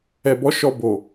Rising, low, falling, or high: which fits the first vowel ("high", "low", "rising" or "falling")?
low